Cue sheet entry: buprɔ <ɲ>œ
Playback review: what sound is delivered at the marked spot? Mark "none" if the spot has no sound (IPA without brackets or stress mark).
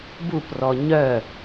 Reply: ɲ